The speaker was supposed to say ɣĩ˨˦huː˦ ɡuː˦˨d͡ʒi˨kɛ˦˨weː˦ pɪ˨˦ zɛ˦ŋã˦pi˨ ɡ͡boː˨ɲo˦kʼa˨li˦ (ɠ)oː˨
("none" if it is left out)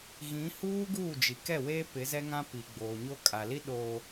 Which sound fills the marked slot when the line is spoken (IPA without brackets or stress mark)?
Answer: ɗ